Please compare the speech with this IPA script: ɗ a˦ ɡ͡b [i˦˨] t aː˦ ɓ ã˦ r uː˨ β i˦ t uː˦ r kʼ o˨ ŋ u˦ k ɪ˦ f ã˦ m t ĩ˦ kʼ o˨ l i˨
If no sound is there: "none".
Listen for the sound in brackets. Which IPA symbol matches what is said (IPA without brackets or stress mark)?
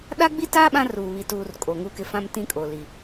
i˦